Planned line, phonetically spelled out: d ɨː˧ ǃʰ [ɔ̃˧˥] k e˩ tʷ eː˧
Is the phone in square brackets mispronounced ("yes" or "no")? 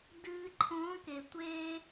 no